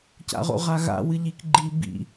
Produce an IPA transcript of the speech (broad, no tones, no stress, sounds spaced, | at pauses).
c a̰ ʁ o̰ ʁ a ɣ a̰ w ɨ ʎ i k ɡ͡ǃ i b ḭ